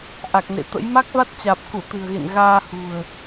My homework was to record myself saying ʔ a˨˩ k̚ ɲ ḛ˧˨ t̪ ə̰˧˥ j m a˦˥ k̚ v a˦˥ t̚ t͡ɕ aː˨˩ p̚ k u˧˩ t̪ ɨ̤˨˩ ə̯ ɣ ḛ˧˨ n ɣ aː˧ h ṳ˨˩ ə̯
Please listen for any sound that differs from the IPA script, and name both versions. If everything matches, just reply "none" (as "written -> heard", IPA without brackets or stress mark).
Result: ɲ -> n